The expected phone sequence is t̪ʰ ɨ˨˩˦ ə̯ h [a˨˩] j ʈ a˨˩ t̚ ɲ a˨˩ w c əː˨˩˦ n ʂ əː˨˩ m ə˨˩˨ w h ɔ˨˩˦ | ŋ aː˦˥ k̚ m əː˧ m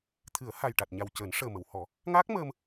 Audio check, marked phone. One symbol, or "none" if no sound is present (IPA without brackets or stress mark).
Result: a˨˩